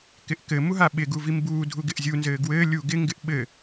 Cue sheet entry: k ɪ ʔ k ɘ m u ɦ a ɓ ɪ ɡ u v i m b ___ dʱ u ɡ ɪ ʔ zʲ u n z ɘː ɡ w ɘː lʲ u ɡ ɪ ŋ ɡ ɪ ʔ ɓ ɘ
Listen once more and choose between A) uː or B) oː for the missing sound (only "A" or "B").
A